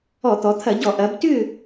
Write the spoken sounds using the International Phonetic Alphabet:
ɔ˧˩˧t̪ɔ˩˧t̪ʰɐ˧˩˧ɟɔ˧˩˧ ʔɐ˩˧btʏ˦˨

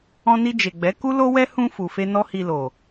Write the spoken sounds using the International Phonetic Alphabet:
ɔ̃˧ni˧d͡ʒe˨ɡ͡bɛ˨˦ ku˦ lo˦wɛ˦ hũ˧ fu˨fe˧ nɔ˦hi˧lo˨

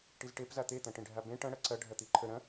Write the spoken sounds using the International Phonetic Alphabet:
ʈizʈepza t̪et̪ɐ̃ʈẽɖʱa bẽ ʈɐ̃ɽɐ ǀɐ ɖʱɐt̪iǃʰə ɾɐ̃

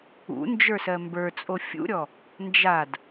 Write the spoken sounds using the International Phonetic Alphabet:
ṵ nd͡ʒə˞sɜmbə˞t͡sʼo fʲṵɾʲɔ | nd͡ʒad

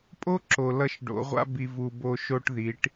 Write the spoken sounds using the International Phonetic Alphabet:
pʼo˦ ǁo˨lʌ˦˨ʃɖo̰˨˦ʁʷa̰˦ bi˨vu˨ bo˦˨ʃo˦ʈ ði˨˦ʈ

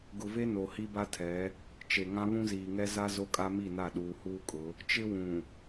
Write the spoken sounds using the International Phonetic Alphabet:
ɡʊ˨ve˦ no˨hi˦ba˦tʰɛ˨˦ | t͡ʃe˨ŋã˦ βũ˦ziː˨ ŋɛ˦za˦ zo˦kʼa˦mi˦˨na˦˨ ɗuː˨huː˦kʼʊ˨˦ | t͡ʃɪ˦wũ˨

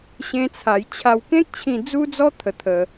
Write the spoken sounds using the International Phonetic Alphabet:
ɕẽ˦t͡sʰa˧j t͡ɕʰa˧wkẽ˦k̚t͡ɕʰĩ˧ d͡zu˦d͡zɔ˦ t̪ʰə˧t̪ʰə˧

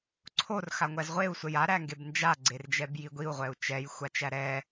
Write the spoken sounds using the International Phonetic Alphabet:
ǀʰor xaŋʷæzʁʷeu̯ sʷɛja ɾæŋɡebnd͡ʒa ɡ͡ǀerd͡ʒɛbjiɡʷiu̯ ʁʷɛu̯t͡ʃɛj xʷat͡ʃæɾɛ

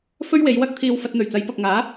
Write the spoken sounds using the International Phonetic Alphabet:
fɵ˥ɥwe˨˧jwɐ˥k̚t̪ʰiː˧w fɐ˧t̚n̪ɵ˨˩ɥt͡sɐ˨˧j pɐ˨k̚ŋaː˨˥

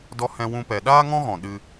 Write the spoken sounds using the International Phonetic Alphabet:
dɔ˦hɛ̃˦wũ˦pɛ˧ ɗaː˦ŋɔ̃˦ɣɔ̃˨ ɗɨ˦

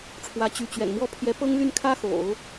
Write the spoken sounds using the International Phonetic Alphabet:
ʈ͡ʂʰwä˧˥t͡ɕy˧˥t͡ɕɥɛ̰˨˩nmwɔ˥ pʰjɛ˧˥pɤ˥ŋly˥˩n kʰä˥xo̰˨˩˦ʊ̯

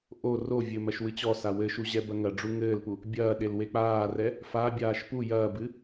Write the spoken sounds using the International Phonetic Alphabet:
ʔo rovʲɘ mɐʃwɨt͡ɕɔsa wɘʃu ʑɛbɐŋɐɖ͡ʐu ŋɘːlpu | bʲɐːɗel wek͡paːrɛ | fabʲaːʃ pu jɐːbɨ

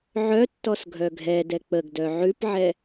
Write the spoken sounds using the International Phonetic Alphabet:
ʕœtːɔs ɡʱœɡʱɛdɛ k͡pəɡdœ ʕʉpʕɛ

